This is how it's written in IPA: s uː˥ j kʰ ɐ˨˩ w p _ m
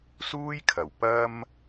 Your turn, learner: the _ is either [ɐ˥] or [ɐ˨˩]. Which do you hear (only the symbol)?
ɐ˥